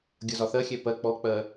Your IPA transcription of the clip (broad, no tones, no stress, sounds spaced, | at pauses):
ɡʲ ʌ z ɒ θ ɜ xʲ ɛ p ɜ k͡p ɔ k͡p ɜ